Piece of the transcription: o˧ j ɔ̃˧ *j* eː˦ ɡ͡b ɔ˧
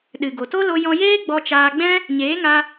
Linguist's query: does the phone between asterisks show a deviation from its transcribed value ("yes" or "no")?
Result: no